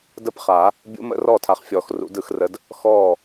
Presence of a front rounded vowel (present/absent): absent